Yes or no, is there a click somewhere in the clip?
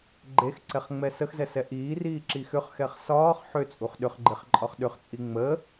yes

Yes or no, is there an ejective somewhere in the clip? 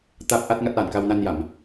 no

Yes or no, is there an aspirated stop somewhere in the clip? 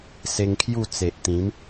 yes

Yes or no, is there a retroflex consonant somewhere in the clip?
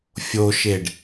yes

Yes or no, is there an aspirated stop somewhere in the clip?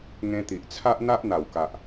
yes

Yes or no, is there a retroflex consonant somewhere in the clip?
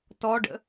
yes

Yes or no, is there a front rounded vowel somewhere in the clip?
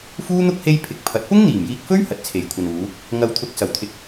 no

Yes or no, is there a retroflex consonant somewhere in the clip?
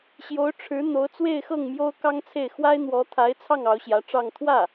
yes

